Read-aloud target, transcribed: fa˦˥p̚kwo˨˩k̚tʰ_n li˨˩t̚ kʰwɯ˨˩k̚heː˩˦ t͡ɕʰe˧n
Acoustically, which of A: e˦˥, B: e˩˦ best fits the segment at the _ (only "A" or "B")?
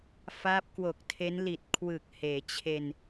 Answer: A